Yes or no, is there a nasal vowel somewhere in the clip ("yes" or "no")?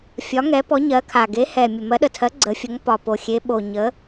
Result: no